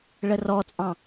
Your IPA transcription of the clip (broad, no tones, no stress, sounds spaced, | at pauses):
ɭ ə r ɔ t͡sʼ ɑ̃